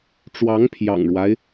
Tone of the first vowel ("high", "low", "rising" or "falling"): rising